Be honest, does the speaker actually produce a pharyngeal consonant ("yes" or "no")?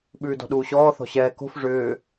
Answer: no